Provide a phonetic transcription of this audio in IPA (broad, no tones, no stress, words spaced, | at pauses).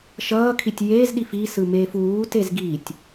ʃʌː kʰitʲjeːz ɗifi sɯmeːfuː tezɡitʲ